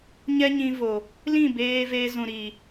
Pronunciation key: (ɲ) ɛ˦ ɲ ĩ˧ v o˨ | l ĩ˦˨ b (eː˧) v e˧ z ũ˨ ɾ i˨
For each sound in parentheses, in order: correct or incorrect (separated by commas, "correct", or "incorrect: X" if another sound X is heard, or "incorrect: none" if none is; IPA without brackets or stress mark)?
correct, correct